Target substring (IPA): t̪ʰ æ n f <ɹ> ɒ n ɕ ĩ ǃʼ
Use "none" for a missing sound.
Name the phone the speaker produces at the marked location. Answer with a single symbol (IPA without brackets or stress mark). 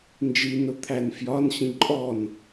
j